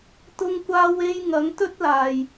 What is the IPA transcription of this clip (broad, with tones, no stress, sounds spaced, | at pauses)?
t̪ ʊ˧ ŋ kʷ aː˧ w e˧ j ŋ ɐ˨˧ ŋ t̪ ɵ˥ t̚ l aː˧ j